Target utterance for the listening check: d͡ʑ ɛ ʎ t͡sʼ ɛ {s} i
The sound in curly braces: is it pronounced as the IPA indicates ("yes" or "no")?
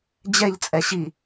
no